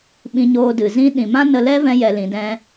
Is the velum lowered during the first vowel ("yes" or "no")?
yes